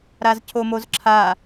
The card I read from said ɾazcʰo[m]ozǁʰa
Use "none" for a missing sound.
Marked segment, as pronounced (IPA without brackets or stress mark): m